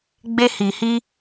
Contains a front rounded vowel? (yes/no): no